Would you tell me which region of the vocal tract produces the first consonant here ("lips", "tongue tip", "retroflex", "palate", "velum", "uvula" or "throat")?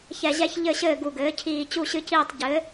palate